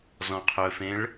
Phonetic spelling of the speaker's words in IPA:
zɔ̃qʰɵfẽɭ

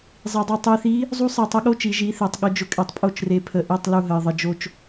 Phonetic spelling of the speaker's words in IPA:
zˤi˩dˤe˧˩ tˤi˧˩θi˧˥ | zˤu˧˥ sˤe˧˩tˤə˧˥ɠo˧˥t͡ʃi˩˧ ʒi˩˧θe˩tˤɠʊ˩˧ d͡ʒʊ˩kʼe˩tˤpʼo˧˩t͡ʃre˩ pʰə˩ ʔe˧˩tˤ lu˧˩ɦə˩ɪ̯ðˤə˩d͡ʒo˧˩t͡ʃ

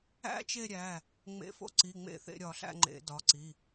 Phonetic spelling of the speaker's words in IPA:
æ̰˦˥t͡ʃe˦˨ɾʲæ˩˧˩ | ŋ͡mḛ˨˦fo̰˦˨ǀi˩˧˩ ŋ͡mḛ˦˨θḛ˦˨ɾʲɒ˧˩˧ɬæ̰˦˨ ŋ͡ǃḛ˧˩˧ dɒ˩˧˩ǀi˩˧˩

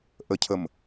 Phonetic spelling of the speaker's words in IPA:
ʔəcʰəm

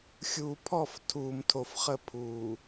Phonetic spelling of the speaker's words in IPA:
xʲuː˨pʰɔ˦˨f tʰuː˨mtʰo˨fχə˦˨pʰuː˨

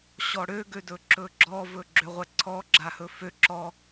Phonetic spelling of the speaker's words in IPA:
ɕɔɽø ɡødɵǁɵɡ͡ǁɔ vɵɡ͡ǁøʁʷɛǀʰɔ ɡ͡ǁahɵfø ǁɔ

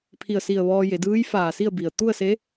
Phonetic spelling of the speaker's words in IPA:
pʰi˧˩ə̯si˧˩ə̯ ʋɔː˧ je˩˧dɯː˧˥jfaː˧˩si˥˨ə̯ bi˩ə̯ t̪u˥˨ə̯se˧˥

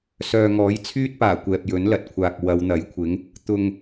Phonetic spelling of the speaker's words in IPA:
sœː˨ŋɔː˨˥jt͡sʰyː˥t̚paː˨˩ kʷɛː˨p̚jɵ˨˥nlɐ˨t̚kʷʰaː˨k̚ wɐ˨˧wn̪ɐ˨˥jkʷʰɪ˨˥ŋ | t̪ʊ˧ŋ

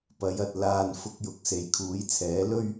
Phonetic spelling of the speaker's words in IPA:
pɐ˨˥jɐ˧t̚laː˧n fʊ˨k̚jʊ˨k̚ se˨˧jkʰuː˨˥jt͡sʰɛː˨˥ lɵ˥ɥ

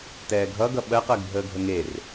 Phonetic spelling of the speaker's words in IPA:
tɛːɡʱʌɡʌ ɓɜqɜɡ bʱəːɡʱəŋer

